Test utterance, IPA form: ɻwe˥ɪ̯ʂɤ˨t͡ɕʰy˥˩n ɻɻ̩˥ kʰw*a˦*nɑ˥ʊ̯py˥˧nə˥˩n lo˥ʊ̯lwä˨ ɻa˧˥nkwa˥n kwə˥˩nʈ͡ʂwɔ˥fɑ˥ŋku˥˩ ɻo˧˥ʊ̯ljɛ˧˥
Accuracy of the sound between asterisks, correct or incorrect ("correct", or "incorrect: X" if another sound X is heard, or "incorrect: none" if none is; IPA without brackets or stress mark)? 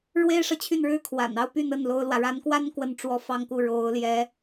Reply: incorrect: a̰˨˩